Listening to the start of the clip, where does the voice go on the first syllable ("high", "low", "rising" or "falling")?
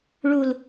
low